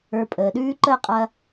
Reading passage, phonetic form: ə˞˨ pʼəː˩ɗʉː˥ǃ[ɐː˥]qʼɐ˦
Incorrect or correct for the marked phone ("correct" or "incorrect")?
incorrect